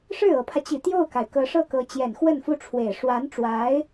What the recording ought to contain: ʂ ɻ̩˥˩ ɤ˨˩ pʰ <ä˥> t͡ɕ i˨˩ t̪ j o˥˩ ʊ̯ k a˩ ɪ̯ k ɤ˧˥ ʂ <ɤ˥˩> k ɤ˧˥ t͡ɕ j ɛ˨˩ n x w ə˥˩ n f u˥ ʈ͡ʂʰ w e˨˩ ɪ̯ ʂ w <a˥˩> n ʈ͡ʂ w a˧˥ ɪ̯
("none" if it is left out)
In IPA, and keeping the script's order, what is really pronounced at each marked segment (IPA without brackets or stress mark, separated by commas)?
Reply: ä˦, ɤ˥˩, a˧˥